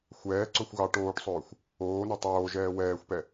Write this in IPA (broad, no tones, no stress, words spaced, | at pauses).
xʷɛːǀɵxʷ ɣɑ ʈoːʈsˤɵːxʷ | oːnɵ tˤoː ʒɛːwɛːxʷpɛ